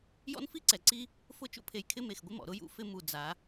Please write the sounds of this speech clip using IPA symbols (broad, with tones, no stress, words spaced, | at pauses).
jɔ̰˦nfi˦ǀɛ˨ǀi˦ | fʊ˦˨t͡ʃṵ˦pʰe˨j kʰɪ˦me˨xɡʷɪ˦mɔ̰˨ ɾʊ˦jṵ˦ fɪ˦ mu˨ d͡za˨˦